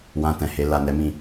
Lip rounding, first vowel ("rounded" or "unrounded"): unrounded